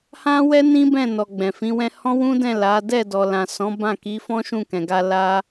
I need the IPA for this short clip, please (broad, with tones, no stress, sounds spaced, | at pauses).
h ã˦ w ɛ˦ n ĩ˦ b ɛ̃˦˨ n ɔ˨ ɡ͡b ɛ̃˨ f ĩ˨˦ w ɛ̃˦ h ɔ̃˦ w ũ˦ d ɛ̃˦˨ l a˨˦ d ɛ˦˨ d ɔ˨ l ã˨ s ɔ̃˨˦ b ã˦˨ k i˨˦ f ɔ̃˦ ʃ ũ˦˨ k ɛ̃˨ ɡ a˧ l a˦